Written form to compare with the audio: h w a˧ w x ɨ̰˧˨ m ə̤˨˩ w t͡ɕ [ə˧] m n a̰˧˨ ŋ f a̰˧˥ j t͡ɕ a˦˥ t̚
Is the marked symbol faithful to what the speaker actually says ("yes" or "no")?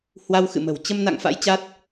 yes